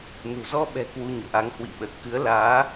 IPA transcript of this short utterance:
nṳ˨˩zɔ˧ɓɛ̤˨˩ kwu˧ɲo̰˧˨ʔa˨˦ŋ hwḭ˧˨ɓə˨˩t̚ kɨ˨˦ə̯laː˨˦

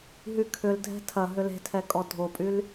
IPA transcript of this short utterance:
ɦykʰʏldʱɛ̤ tʰɐ ɦʏle̤tʰɛ kʼɔdʱopʼyl

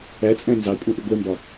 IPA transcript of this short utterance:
æt͡sʼæ̃ nzɑ kʷʼæ̃ʔiɡʷɛmbɒ

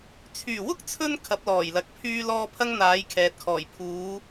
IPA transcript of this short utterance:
t͡sʰyː˨˩ wʊ˥k̚t͡sʰɵ˧n kʰɐ˨˥p̚lɔː˨˩jlɐ˨˥k̚ pʰyː˧lɔː˧ pʰɐ˥ŋn̪aː˨˥jkʰɛː˨t̚kʰɔː˨˩j pʰuː˨˥

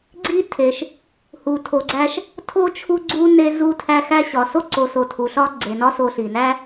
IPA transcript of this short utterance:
ɡ͡ǀi˥tʰe˩ʃ | hu˨tʰo˨ɡ͡ǀæ˦ʃ | tʰo˥ t͡ʃʰu˦ɡ͡ǀu˦ ne˦ zu˦ tʰæ˦xæ˥ɕɒ˨ so˥ǀo˨ so˨tʰu˩ ɬɒ˥ ɡ͡ǀe˩nɒ˦so˨ ɬi˩næ˥

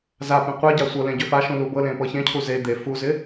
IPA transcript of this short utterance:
zapẽ qʷeɟa sʷɤlẽ ɟʏfaʃũ lubɤlẽ pɤçẽcʰu ze d̪e fuzɪ

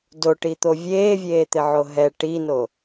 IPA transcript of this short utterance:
doʈit̪o vʲeːvʲeːt̪ɪʕo ɦɛ ʈino

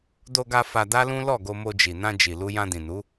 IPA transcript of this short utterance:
do˧ɡa˧ fa˧da˦lũ˦ lɔ˦˨ɡo˧mo˧d͡ʒi˨ nã˧ d͡ʒi˨lu˧ jã˧dĩ˨nu˨˦

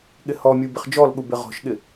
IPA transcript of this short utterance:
ɠɪhɔmʲu bɪχd͡ʒɔlɠu bɪʁɔ̤ʃɠɪ

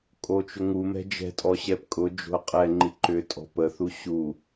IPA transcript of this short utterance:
kʼot͡ʃʊŋumɛ̤ d͡ʒɛ̤tʼɔ ɕɛpkʼʊd͡ʒo̤ə̯ qʼɛ ŋ͡ǃiǃʏtʼɔ̤ pəθu ɕu

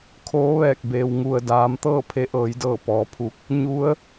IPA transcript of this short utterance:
kʰoː˧˥ʋɛː˧˩k̚ beː˩w ŋu˩ə̯daː˩˧m t̪ɤː˥˨pʰe˧˥ʔɤː˩˧jdɤː˧˩ pɔː˩˧pʰu˧˥k̚ | ɲu˧˥ə̯

